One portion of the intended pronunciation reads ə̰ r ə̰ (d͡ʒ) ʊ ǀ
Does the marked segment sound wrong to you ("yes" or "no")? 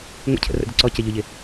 yes